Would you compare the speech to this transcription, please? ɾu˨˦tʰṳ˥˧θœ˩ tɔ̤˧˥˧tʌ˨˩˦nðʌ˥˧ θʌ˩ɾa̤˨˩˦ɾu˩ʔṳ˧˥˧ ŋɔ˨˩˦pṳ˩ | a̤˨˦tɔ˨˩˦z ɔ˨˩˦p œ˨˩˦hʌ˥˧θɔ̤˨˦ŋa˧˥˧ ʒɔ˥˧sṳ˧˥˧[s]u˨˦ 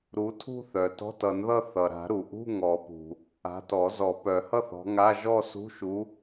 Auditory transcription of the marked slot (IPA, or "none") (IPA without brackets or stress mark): ʃ